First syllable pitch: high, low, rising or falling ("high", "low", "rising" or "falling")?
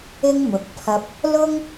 high